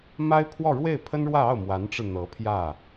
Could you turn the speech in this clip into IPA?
ma˥ɪ̯ pʰwɔ˥˧ɻwe˥˩ɪ̯pʰə˥nɻwä˥˧ ɑ˥˩ʊ̯ mwa˧˥nʈ͡ʂɻ̩˧ n̪ɤ˧˥pʰjä˥˩

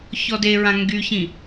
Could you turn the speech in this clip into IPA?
çɔdeɹã ŋɡyçĩ

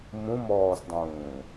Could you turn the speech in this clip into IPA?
mũmɔːsdˤũː

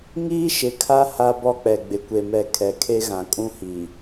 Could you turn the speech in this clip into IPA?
ŋiː˦ ʃɪ˨kʰa˦ ha˦bɔ˦k͡pɛ˨ɡ͡bɪ˨ kʷe˨mɛ˨ kʰɛ˨kʰe˦ɣã˨ kʼũ˦hiː˨

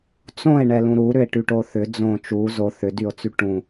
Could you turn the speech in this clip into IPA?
t͡sõe̯ ɳɛlũɾu ɾʏe̯ʈyʈoθʏ d͡zõ t͡ʃu zo θʏ dyo̯t͡syʈũ

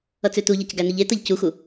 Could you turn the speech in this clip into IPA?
ʌt͡søtuʎac ɡænʏʎetʌʎ cuxu

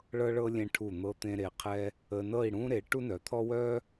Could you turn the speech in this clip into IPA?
ɭɤ˧ɭɤ˧ lʲẽ˧ʈʰu˧˩n̪ɤ˧t̪ẽ˧ ɾe˩˧qʰɛ˧ | ə˧nɤ˥˧i̯ɽũ˥ ɾe˩˧ ʈu˧nœ˩˧t̪ʰɔ˧ wœ˥

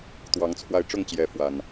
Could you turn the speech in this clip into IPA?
t̪wɑ˨˦ŋt͡sʰwa˧ɪ̯ʈ͡ʂʊ˥˨ŋt͡ɕjɛ˨˦ fwa˨˩n

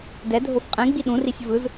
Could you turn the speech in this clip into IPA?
dɛdʱof qʼẽɡ͡bi ɗũrisʲ vɯz

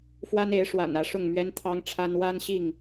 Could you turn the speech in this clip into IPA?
fwa˦ne˨˦ɪ̯ ʂwa̰˨˩nä˨˦ʂʊ˥˨ŋ mɥɛ˦nt̪ʰɑ˦ŋʈ͡ʂʰa˦n wa˦nɕi˥˨ŋ

